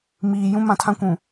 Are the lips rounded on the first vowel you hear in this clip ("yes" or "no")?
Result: no